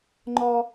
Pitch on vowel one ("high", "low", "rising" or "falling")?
high